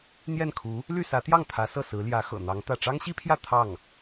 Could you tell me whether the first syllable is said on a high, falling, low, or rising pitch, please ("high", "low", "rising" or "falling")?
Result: falling